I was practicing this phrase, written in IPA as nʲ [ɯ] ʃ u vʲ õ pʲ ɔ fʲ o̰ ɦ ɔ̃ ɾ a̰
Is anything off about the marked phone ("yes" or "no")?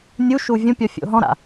yes